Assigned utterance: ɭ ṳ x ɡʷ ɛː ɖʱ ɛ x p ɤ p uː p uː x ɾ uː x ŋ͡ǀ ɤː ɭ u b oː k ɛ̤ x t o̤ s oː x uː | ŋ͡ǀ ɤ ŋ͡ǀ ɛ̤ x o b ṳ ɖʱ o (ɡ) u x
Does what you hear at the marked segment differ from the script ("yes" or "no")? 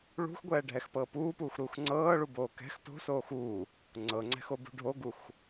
no